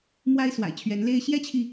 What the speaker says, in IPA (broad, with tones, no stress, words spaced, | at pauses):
mwa˥ɪ̯swa̰˨˩ɪ̯t͡ɕʰɥɛ˧˥nle˥ɪ̯ ɕjɛ˥t͡ɕʰi˨